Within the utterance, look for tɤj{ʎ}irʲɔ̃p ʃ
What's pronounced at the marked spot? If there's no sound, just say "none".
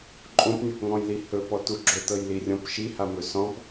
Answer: l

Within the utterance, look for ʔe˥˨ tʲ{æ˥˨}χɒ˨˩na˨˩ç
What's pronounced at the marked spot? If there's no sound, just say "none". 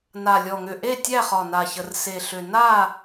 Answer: æ˥˨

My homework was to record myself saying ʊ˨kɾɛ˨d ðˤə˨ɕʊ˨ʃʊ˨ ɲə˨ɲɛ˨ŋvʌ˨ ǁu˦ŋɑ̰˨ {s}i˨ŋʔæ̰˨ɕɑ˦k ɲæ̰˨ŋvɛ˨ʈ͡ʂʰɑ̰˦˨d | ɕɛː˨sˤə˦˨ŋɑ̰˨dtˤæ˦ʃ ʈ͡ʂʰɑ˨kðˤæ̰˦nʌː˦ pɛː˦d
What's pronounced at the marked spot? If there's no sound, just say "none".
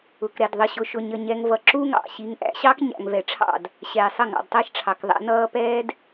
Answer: ɕ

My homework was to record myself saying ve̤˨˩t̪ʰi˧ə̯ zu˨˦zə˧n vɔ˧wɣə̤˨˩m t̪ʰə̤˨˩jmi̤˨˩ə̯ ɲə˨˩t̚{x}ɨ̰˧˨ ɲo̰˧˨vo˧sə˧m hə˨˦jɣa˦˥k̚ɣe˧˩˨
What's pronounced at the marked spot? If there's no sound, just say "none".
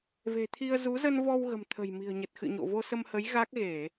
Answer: x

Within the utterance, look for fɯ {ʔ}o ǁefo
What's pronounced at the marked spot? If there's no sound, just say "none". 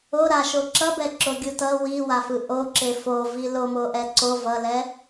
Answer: ʔ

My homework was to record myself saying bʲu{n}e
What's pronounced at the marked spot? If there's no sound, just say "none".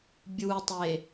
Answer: tˤ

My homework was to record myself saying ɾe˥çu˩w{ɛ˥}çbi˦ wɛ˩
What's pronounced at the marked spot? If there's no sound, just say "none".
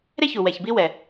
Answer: ɛ˩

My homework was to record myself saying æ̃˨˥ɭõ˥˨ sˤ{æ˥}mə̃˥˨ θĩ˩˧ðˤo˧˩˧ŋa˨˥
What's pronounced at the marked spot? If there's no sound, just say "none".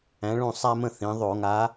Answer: æ˥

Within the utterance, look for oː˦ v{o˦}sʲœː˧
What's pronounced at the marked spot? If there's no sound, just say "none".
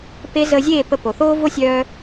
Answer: o˦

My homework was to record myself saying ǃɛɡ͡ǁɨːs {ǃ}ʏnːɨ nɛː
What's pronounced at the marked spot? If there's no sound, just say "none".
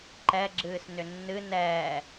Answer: n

